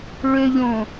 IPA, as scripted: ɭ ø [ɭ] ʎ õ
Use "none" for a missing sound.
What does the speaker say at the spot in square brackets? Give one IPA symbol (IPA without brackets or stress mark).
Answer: none